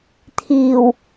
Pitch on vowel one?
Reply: low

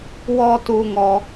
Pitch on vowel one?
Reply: high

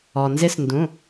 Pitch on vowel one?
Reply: low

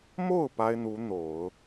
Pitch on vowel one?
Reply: falling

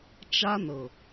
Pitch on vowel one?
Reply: high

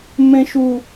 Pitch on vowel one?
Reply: high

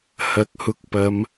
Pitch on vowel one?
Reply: rising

